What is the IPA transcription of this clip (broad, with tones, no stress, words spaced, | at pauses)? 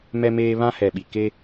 mɛ˨meː˨ βã˦hɛ˨ɓi˨ ke˦